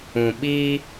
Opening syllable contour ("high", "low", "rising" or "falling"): low